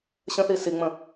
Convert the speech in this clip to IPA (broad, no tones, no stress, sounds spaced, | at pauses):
ɕ ə̃ θ i s i ŋ͡m ə̃